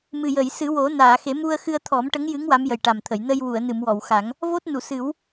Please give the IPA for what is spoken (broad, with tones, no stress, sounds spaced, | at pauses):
m ɨ˨˩ j ə˨˩˨ j s ɨ˨˩˦ w o˨˩˦ n aː˨˩˨ x e˨˩˦ m u˧ ə̯ x ɨ˧ ə̯ t̪ʰ ɔ˨˩˦ m ʈ ə˧˥ ŋ j ɨ˧˥ ŋ w a˧˥ m j ə˨˩ j ʈ a˨˩ m t̪ʰ ə˨˩˨ j n ə˧ j w u˨˩˨ ə̯ n ɨ˨˩˨ m w ɔ˨˩˨ w x a˨˩˦ ŋ | v o˦˥ t̚ n u˨˩˨ s ɨ˨˩˦ w